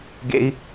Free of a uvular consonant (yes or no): yes